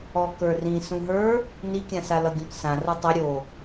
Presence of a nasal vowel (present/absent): present